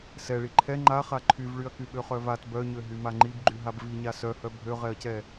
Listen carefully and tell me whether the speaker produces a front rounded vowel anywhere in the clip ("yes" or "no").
yes